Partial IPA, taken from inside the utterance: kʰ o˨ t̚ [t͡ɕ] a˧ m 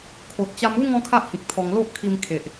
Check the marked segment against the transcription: correct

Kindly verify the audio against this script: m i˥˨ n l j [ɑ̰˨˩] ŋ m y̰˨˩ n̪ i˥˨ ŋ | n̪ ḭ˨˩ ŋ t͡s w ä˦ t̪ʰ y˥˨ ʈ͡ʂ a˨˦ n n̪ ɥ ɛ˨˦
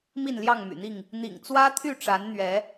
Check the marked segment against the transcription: incorrect: ɑ˥˨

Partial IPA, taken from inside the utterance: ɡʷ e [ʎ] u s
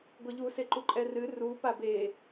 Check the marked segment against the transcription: correct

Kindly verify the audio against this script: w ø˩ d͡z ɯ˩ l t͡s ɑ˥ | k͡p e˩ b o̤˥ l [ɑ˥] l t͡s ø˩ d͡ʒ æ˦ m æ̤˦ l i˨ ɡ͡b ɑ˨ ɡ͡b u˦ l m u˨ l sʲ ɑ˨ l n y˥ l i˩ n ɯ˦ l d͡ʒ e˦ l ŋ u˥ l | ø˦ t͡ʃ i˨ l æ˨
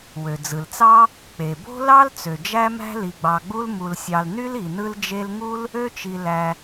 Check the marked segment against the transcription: correct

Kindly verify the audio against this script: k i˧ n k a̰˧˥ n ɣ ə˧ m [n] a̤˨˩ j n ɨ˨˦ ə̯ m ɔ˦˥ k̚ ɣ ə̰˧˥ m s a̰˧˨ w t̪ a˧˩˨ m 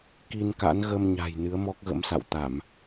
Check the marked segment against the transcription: incorrect: ɲ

